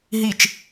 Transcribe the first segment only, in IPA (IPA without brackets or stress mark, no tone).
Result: ɦ